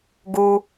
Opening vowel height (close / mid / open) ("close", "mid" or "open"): close